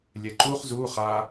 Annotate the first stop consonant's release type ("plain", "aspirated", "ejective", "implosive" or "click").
click